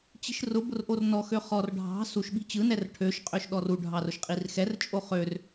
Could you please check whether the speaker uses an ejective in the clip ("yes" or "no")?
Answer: yes